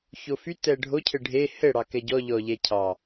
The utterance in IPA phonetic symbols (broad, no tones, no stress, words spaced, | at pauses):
çofy tɛɖʱo cʰɘɖʱe hɘ ɽɑkɛɟɔ ʎɔ ʎɛcʰɑ